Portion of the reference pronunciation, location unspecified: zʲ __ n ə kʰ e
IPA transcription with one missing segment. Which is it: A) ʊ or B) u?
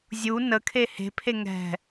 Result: B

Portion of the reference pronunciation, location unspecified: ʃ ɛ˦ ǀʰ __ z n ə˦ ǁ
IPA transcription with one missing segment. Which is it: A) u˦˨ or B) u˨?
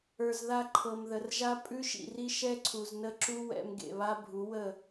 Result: B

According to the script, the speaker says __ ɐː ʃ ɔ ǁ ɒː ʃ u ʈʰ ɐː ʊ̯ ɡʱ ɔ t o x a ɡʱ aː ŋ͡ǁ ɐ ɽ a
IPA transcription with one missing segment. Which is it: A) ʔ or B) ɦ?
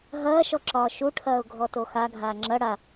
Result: B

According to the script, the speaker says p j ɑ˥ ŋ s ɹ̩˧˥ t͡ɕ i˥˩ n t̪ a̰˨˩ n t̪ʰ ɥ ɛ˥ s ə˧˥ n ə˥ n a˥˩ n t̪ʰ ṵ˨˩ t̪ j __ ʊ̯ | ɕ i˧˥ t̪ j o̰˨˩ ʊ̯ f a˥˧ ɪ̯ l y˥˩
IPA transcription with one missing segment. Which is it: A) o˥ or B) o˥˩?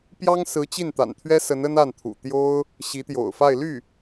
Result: A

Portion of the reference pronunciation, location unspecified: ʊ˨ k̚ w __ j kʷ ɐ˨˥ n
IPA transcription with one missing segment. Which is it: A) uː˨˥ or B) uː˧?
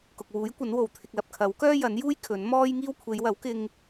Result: A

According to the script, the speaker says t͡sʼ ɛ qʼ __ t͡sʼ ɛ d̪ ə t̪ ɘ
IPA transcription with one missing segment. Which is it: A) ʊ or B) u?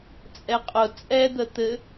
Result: A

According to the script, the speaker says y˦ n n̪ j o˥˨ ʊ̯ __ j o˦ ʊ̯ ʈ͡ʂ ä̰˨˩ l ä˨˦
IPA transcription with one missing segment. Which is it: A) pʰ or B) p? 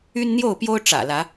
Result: B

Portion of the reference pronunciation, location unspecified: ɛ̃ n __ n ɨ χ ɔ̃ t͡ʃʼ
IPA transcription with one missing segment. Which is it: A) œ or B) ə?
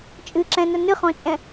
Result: B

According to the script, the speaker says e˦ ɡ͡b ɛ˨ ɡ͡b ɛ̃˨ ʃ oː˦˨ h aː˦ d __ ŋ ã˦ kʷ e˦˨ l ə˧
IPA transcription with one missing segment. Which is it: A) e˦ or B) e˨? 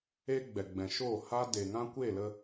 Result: B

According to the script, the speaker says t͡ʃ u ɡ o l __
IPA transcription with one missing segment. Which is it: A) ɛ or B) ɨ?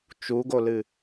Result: B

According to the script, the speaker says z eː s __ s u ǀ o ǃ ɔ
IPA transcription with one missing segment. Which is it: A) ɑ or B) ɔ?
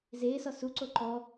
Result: B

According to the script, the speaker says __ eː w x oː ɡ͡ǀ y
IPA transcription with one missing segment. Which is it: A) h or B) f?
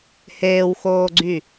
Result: A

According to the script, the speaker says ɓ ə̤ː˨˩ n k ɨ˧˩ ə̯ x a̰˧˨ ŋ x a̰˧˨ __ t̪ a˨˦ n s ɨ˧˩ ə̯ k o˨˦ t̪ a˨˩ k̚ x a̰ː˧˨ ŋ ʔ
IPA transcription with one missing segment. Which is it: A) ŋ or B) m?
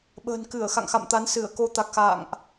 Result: B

